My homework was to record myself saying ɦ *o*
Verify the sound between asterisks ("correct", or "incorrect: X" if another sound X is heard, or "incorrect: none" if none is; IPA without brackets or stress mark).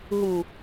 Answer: incorrect: u